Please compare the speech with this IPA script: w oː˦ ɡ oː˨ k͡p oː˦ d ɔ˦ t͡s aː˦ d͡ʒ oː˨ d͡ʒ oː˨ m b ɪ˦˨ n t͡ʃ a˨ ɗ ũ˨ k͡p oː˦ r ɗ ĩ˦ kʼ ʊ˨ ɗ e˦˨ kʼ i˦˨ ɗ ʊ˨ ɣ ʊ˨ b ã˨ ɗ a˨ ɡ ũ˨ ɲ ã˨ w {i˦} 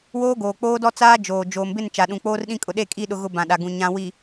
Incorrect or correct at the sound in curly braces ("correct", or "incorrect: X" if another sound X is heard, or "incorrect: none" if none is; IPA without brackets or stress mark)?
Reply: incorrect: i˨